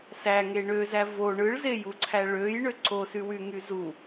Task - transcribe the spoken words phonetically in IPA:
sæŋe ɳøzæ vo ɳɯɭzejuǀʰæ ɭøjɳø ǀosywyŋy zu

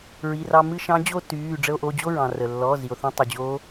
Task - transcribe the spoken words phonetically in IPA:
ɹi˩˧˩rɑ˧mɨ˥˧ ʃɑ̃˧˥ d͡ʑo˥˧ tyː˩˧˩ ɖ͡ʐə˧o̯ʔo˩˧˩d͡ʑo˥˧ɹɑ̃˩ rə˩lːɔ˩˧˩ zi˩o̯θõ˧tˤu˩d͡ʑo˧˥

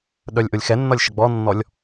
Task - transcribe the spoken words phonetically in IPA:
ɗœlʲʔolʲxɛnːɒlʲ ʃəɡ͡bɔnːɔlʲ

